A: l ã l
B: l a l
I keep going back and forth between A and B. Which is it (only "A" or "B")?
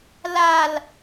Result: B